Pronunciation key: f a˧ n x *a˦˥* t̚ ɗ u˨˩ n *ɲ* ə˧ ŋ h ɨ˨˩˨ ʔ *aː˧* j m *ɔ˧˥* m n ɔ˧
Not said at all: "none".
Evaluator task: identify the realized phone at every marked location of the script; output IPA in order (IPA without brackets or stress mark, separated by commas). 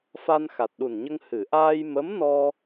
a˨˩, ɲ, aː˧, ə˧˥